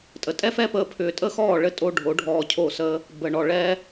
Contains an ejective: yes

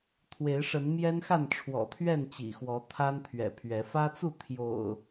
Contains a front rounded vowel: no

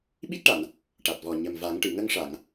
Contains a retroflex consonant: yes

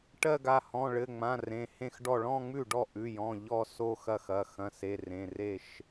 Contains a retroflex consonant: yes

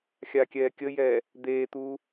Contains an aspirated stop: no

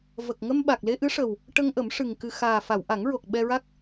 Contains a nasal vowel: no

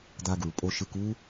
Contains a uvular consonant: no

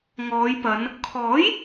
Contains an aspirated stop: yes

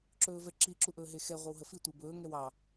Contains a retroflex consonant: no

